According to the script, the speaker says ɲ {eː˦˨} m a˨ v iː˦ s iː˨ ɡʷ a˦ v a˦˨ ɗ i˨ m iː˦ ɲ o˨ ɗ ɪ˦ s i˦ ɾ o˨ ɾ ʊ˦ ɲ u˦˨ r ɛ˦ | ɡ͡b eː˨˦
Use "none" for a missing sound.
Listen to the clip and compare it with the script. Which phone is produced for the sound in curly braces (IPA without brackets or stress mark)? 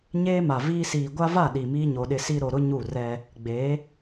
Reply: eː˦